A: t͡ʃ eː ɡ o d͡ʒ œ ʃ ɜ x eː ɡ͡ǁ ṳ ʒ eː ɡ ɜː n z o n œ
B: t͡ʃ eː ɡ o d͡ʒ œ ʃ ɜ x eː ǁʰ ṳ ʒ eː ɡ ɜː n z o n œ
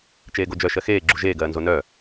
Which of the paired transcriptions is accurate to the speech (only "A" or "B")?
A